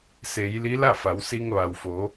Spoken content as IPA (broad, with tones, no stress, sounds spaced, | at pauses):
s e˩˧ j l i˧˥ l a˥˨ f a˩˧ w s i˧ ŋ ʋ a˩ w f o˩˧